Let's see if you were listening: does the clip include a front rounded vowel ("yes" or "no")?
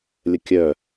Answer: yes